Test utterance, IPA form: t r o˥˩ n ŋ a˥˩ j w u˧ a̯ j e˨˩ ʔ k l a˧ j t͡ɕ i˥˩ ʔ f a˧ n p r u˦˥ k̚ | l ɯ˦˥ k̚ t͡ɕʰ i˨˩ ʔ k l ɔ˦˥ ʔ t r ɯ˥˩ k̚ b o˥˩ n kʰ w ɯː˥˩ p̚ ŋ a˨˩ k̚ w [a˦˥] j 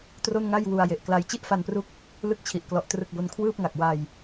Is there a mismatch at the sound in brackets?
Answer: yes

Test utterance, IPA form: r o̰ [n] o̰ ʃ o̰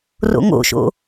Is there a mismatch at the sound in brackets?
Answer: yes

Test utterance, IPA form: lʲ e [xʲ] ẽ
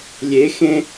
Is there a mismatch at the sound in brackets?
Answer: yes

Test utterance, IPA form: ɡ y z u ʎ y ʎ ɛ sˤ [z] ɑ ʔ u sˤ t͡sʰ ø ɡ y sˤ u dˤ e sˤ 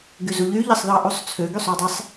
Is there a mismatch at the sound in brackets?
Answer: yes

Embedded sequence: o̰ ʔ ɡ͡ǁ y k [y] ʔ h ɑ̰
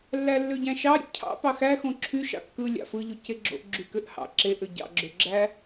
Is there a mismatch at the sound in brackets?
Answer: yes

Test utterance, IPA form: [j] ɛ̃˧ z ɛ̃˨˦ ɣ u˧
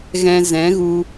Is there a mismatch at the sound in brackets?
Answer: yes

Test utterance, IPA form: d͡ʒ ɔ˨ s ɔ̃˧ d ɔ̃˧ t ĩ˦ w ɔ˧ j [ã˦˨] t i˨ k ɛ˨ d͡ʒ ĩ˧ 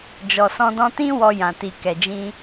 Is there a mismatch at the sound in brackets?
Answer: yes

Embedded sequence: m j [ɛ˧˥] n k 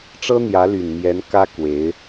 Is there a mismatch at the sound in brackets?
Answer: no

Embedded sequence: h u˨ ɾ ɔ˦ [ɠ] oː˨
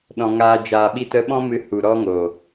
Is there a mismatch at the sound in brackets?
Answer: yes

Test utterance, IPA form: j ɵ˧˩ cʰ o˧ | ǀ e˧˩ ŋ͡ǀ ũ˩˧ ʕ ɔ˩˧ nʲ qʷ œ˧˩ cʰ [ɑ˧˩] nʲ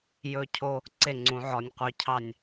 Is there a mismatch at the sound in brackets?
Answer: no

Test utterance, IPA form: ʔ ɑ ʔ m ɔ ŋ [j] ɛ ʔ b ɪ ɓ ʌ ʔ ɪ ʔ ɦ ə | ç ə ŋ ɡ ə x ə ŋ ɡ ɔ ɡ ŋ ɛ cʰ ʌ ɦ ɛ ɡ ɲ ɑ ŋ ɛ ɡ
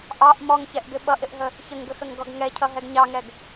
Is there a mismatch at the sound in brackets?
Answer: yes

